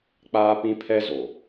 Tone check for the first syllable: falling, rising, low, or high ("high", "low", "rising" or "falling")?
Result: high